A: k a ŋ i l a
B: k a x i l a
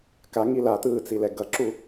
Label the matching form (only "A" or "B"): A